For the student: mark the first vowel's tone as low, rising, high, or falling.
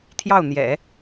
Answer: falling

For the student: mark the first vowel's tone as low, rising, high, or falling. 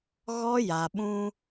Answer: high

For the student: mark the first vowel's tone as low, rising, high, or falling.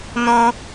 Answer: high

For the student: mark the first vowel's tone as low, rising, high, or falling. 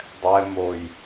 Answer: low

